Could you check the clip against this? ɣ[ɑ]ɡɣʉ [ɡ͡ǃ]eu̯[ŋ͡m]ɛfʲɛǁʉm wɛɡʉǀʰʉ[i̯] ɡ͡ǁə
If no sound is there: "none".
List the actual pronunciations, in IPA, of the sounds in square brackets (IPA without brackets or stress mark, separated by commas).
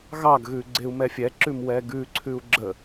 ɑ, ɡ͡ǀ, m, u̯